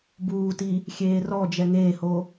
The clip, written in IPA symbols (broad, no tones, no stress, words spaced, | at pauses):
buːti | xʲeːrɔd͡ʒɛ ŋeːho